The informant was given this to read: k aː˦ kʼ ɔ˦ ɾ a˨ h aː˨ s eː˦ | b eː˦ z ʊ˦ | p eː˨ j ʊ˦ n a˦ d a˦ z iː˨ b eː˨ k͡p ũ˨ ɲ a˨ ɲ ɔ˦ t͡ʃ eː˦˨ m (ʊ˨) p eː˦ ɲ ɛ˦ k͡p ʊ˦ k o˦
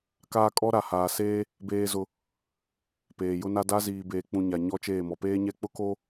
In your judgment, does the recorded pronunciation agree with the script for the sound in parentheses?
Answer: no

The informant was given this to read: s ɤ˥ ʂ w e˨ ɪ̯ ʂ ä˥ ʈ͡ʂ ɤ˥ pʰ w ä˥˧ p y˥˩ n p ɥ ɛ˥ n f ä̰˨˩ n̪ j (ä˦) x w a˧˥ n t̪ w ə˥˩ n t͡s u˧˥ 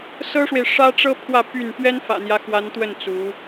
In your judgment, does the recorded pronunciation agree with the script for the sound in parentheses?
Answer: yes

